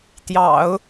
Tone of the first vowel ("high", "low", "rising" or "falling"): low